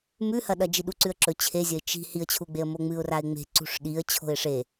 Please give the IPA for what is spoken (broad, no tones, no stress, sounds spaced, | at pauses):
m ʉ h ɐ ɗ ɐ d͡ʒ i ɗ u ǀ ʉ ə̯ ǁ ɵ t͡ɕʰ e zʲ ɐ ɪ̯ t͡ʃ i̤ h i ə̯ t͡ɕʰ u ɡ͡b e ə̯ m o ŋ͡m ɨ ʊ̯ r a ɪ̯ ŋ͡m e̤ ǀ ṳ ʂ ɗ i ə̯ t͡ɕʰ o̤ ɪ̯ ʂ e